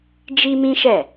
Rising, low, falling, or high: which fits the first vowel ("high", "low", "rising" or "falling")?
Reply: high